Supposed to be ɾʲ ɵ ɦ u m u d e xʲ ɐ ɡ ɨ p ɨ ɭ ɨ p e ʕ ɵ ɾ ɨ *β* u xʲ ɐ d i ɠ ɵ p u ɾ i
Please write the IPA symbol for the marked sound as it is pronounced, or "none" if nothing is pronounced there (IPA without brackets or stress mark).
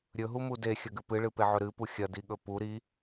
p